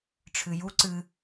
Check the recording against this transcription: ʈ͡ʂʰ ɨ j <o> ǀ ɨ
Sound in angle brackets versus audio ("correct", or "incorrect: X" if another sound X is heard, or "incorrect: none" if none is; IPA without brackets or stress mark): incorrect: u